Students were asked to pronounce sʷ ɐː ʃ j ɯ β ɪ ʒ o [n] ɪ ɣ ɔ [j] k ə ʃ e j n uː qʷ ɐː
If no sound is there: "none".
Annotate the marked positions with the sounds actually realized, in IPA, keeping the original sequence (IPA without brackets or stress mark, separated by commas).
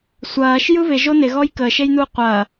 n, j